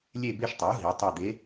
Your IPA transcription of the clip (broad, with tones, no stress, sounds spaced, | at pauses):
lʲ e˦˨ b e˦˨ ʃ tˤ e˩˥ u̯ ɦ i˩˧ tˤ e˦˨ d̪ e˧˥